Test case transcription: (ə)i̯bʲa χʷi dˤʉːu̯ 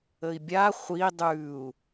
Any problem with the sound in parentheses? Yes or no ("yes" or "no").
no